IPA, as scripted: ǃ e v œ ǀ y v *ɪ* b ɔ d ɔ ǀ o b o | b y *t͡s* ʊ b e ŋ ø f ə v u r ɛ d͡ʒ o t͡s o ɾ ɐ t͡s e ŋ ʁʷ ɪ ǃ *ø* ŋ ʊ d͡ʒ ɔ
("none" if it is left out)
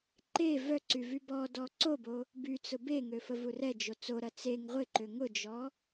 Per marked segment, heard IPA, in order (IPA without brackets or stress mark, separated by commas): y, t͡s, ø